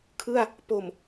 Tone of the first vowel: falling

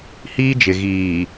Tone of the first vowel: high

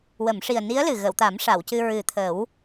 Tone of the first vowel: low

